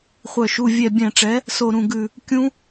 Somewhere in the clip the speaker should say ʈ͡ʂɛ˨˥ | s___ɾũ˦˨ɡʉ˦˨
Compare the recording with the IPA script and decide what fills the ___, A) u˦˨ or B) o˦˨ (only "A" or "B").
B